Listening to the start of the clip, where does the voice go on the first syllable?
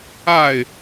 falling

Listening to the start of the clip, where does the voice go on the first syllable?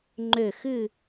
falling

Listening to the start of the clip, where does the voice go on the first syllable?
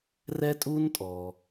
high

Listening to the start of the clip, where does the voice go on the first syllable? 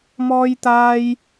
high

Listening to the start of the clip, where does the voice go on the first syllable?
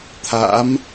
rising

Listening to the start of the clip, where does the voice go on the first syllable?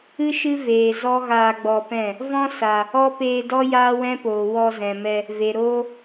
high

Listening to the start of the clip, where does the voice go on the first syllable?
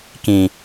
low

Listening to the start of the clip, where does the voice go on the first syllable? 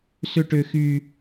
high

